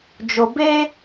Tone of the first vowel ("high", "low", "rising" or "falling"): low